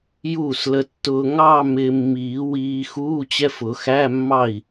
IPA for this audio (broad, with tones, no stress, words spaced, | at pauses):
juː˥˩slə˧tːʊː˧ ŋɑ˥˧ mɪː˧mːiː˨˩˦wiː˧ xuː˧˥˧t͡ɕɛ˧˥˧fʊ˨˩˦ xæ˧˥˧mːɑ˥˩i̯